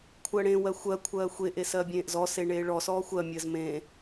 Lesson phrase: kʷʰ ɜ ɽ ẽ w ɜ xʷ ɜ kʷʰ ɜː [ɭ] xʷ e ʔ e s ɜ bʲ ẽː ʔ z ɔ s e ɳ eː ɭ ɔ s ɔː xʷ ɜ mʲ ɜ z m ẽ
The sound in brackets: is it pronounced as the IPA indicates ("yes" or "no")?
no